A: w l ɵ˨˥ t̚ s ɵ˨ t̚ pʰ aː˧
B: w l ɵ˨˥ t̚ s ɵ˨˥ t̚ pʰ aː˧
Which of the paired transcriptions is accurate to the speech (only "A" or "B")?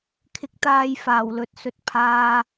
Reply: A